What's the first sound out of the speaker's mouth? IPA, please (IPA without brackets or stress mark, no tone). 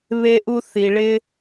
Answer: β